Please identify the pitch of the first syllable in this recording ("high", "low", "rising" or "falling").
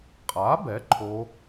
rising